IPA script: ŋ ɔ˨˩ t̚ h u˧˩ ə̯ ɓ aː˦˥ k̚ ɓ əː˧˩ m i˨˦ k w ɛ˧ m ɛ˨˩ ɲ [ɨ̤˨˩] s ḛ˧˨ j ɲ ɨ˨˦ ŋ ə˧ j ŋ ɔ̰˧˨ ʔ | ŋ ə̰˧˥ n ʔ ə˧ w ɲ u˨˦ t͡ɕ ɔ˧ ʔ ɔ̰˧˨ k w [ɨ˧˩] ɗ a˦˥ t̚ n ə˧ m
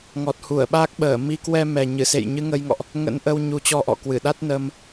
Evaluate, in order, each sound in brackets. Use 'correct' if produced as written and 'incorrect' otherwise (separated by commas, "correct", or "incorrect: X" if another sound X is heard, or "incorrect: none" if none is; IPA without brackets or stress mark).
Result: incorrect: ɨ˧˩, correct